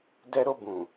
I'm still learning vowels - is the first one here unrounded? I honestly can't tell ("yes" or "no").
yes